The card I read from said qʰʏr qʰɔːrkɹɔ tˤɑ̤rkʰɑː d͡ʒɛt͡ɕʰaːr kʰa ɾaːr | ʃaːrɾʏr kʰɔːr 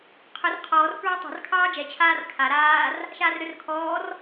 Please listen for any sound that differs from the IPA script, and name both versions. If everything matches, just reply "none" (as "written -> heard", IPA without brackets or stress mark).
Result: none